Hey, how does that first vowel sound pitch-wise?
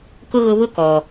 high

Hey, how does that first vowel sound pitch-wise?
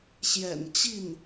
low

